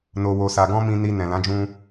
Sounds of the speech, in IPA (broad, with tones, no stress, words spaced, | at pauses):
no˧wo˧sa˧ ɡɔ̃˦mĩ˧ni˧ nɛ̃˨lã˨˦d͡ʒũ˧